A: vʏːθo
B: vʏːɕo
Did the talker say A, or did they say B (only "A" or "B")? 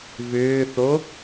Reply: A